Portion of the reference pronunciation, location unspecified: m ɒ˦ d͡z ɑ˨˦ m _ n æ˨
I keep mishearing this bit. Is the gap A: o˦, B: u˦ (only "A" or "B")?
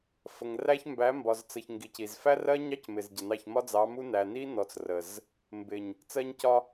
B